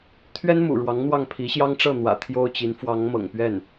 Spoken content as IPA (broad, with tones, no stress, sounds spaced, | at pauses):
t̪ʰ ɥ ɛ˥ n m ṵ˨˩ ɻ w ɑ˧˥ ŋ n̪ w ɑ˥˩ ŋ pʰ i˧˥ ɕ j ɑ˥ ŋ ʈ͡ʂ ɤ˥˩ n̪ w ä̰˨˩ t̪ʰ j o˥ ʊ̯ t͡ɕ i˧˥ n f w ɑ˧˥ ŋ m ɤ̰˨˩ ŋ p ɥ ɛ˥˩ n